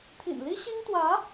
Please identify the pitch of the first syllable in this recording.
low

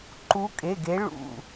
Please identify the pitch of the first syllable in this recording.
rising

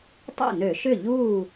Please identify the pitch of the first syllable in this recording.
falling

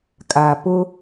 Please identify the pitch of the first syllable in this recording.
low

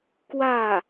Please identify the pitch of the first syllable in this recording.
falling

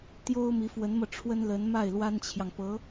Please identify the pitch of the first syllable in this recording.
high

